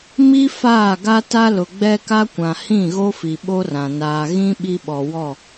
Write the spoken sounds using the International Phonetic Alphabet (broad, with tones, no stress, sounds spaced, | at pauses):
m i˦ f aː˦˨ ɡ a˦ t a˦ l ʊ˨ ɡ͡b ɛ˦ k a˦ kʷ ã˨ h ĩ˦˨ ɣ o˦ f i˨ ɓ o˦ r ã˨ n aː˨ ɣ ĩ˦ ɓ i˦ ɓ ɔ˨ w ɔ˦˨